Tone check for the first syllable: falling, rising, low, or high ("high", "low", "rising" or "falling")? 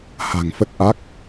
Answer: low